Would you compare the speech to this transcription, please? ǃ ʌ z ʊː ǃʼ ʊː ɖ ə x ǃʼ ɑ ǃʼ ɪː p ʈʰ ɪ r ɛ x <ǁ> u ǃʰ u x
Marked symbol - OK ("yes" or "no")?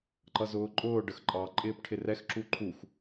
yes